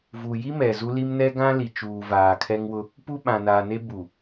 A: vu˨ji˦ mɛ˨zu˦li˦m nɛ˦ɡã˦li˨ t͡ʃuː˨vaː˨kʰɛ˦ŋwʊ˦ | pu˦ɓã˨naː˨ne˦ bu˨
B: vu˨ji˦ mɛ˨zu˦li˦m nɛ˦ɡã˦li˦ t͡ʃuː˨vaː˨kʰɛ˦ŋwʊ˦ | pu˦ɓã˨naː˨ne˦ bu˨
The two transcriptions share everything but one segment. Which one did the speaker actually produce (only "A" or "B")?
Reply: A